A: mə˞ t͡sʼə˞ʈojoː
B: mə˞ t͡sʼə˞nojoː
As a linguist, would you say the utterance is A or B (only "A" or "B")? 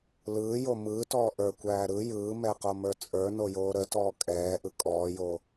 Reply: B